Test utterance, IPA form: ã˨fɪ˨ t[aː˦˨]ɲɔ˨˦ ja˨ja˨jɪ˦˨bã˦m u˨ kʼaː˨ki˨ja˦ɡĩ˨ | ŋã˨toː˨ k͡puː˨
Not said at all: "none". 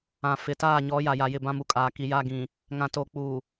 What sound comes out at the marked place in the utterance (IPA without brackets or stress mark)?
aː˦˨